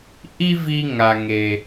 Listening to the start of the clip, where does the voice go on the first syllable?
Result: high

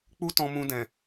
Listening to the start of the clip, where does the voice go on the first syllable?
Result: high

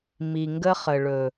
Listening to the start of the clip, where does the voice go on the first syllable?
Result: low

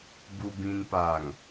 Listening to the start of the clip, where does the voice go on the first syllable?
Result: low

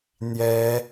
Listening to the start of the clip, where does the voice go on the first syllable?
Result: high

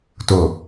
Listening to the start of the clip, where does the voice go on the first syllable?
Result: low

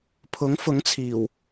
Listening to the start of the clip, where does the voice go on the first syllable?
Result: rising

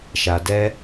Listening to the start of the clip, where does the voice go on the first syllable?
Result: low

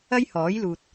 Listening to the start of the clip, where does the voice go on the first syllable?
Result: high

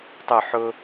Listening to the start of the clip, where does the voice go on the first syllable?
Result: falling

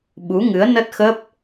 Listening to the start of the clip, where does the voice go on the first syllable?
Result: rising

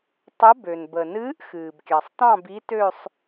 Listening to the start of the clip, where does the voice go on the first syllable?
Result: rising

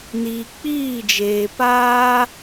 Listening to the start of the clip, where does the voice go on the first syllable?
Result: low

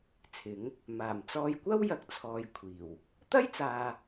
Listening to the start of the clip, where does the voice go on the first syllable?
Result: rising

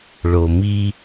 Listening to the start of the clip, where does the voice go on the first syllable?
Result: low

